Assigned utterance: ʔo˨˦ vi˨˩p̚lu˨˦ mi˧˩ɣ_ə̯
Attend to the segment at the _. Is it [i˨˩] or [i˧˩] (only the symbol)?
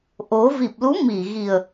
i˨˩